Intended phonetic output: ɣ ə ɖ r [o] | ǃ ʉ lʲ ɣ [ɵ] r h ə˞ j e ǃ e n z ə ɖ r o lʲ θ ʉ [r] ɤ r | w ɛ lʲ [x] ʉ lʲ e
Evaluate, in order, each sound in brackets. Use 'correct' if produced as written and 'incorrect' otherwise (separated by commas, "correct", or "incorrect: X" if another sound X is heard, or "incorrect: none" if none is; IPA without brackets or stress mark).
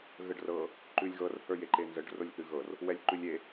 incorrect: ɤ, incorrect: ɤ, incorrect: ɣ, incorrect: ǃ